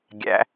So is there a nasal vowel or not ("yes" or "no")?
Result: no